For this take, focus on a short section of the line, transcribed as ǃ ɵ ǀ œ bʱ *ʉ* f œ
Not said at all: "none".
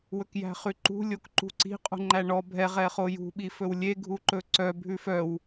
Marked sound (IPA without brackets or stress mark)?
ʉ